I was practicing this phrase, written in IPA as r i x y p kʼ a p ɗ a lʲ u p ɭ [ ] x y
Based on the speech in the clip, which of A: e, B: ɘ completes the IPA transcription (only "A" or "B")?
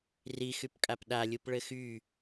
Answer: B